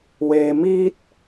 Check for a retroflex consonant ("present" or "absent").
absent